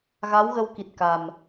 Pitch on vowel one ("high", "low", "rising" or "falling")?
rising